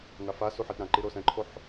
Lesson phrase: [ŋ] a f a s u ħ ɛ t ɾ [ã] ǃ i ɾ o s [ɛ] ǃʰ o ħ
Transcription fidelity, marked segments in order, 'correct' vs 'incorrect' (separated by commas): correct, correct, incorrect